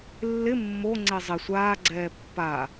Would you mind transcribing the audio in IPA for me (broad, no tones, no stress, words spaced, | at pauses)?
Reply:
lːɪ mːoŋ͡ǀe zˤɪ sʷaːɡ͡ǀɛː pːa